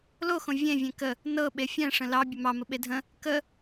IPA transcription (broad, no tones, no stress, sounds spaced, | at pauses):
l o x õ vʲ ẽ vʲ ẽ k ə | n ɤ ɓ e fʲ ɛ̃ ʂ ə̃ l ɑ bʲ ə m ɑ m ə ɓ e dʱ ə̃ | k ə